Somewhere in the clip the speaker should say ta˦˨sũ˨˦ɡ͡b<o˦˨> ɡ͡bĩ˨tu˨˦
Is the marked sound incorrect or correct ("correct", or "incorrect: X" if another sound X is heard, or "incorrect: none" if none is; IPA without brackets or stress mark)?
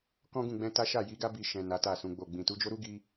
correct